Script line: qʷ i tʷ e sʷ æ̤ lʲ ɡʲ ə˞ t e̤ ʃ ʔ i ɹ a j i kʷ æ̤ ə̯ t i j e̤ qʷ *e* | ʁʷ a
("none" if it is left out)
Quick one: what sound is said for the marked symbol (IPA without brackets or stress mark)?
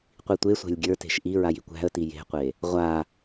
e